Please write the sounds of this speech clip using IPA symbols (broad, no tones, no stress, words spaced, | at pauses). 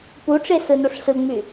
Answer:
puʈ͡ʂe sɯnoʂsɯŋ͡my